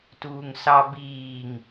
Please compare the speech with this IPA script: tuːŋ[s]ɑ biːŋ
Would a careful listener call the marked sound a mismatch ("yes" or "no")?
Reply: no